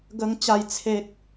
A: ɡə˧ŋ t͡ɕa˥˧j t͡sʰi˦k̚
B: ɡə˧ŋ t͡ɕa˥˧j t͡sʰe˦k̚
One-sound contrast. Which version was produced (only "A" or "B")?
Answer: B